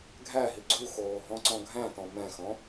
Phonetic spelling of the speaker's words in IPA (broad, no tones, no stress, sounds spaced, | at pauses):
ɡʱ æ ɦ i ɡ͡ǀ u x oː ɦ ɔ̃ ǀ ɔ̃ ɡʱ æ̃ t ɔ̃ m ɛ̃ x ɔ̃